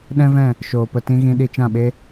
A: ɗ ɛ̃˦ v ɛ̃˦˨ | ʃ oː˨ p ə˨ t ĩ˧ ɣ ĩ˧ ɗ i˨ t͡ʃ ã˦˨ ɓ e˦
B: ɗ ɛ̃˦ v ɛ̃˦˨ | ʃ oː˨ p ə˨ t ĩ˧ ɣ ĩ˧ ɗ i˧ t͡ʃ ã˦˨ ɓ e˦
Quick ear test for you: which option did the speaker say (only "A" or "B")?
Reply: B